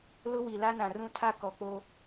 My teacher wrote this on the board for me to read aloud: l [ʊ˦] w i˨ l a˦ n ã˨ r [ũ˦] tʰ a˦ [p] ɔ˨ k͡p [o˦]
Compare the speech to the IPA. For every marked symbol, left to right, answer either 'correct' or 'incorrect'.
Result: correct, correct, incorrect: k, correct

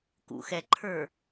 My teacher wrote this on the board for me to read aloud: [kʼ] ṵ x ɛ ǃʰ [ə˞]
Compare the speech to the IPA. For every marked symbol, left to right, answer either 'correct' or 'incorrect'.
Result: incorrect: k, correct

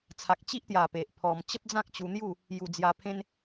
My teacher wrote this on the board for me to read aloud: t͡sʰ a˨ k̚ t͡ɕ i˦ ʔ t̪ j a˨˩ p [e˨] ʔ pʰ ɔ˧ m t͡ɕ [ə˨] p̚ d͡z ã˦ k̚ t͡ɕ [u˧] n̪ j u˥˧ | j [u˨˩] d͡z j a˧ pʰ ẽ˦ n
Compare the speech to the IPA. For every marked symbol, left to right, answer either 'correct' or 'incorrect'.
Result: correct, incorrect: ə˦, correct, correct

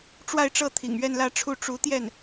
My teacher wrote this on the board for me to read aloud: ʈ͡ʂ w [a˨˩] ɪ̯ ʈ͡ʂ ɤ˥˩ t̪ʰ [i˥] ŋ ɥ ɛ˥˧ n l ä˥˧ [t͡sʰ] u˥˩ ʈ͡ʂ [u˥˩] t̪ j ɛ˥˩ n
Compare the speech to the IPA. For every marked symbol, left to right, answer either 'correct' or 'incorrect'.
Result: incorrect: a˥˧, incorrect: ḭ˨˩, incorrect: ʈ͡ʂʰ, incorrect: u˧˥

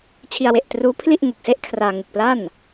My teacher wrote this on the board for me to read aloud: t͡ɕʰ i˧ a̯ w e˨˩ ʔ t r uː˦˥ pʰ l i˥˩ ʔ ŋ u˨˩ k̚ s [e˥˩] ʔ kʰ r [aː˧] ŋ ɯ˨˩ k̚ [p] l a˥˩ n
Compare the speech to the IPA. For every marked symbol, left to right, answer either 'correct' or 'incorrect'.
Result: correct, correct, correct

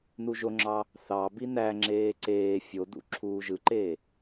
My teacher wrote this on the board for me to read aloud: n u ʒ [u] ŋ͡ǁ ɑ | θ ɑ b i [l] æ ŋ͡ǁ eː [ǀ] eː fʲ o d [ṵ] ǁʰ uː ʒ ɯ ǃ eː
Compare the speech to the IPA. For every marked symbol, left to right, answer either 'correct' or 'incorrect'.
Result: incorrect: o, incorrect: n, correct, correct

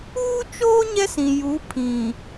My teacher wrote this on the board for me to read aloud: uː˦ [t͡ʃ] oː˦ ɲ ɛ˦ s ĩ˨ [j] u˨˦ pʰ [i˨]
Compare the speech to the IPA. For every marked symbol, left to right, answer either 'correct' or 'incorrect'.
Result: correct, correct, incorrect: ĩ˨

